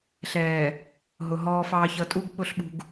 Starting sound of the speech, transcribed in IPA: ɬ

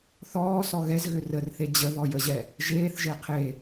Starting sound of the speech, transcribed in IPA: θ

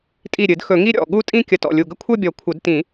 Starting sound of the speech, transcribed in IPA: tʼ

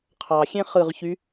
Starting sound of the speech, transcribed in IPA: qʰ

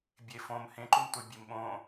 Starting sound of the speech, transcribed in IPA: bʲ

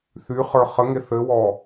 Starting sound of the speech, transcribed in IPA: θ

